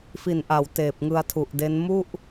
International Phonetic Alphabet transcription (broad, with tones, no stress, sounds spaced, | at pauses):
f i˨˩ n ʔ a˩˦ w t eː˨˩ p̚ ŋ ɯ˧ a̯ tʰ u˨˩ ʔ d e˦˥ n m u˥˩ ʔ